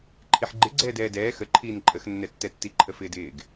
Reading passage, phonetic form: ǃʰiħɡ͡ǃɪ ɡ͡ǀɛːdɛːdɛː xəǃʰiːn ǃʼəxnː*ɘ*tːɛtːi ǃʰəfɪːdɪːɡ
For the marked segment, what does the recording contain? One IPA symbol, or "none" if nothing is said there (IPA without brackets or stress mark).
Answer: ɛ